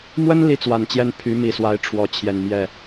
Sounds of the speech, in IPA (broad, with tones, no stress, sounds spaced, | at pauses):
m w ə˥ n l i˧˥ t͡s w a˨˩ n t͡ɕ j ɛ˥˩ n pʰ y˧˥ m i˨˩ s w a˧˥ ɪ̯ ʈ͡ʂʰ w ɔ˧˥ t͡ɕʰ j ɛ˨˩ n m j ɛ˥˩